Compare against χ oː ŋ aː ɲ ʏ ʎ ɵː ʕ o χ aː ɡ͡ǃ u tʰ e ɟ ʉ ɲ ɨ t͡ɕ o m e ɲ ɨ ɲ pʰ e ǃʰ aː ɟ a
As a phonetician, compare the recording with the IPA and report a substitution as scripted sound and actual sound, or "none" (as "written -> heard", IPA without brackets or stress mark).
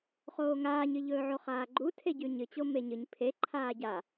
ʏ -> ɨ